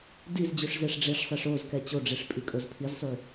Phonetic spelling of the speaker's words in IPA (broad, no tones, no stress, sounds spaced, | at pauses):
d i z d͡ʑ ʉ ʂ z e ʂ ɖ͡ʐ e ʂ sˤ e ʂ o z k ɛ t͡ɕ o ɖ͡ʐ i ʂ pʼ i kʼ o z pʰ i z sˤ ʉ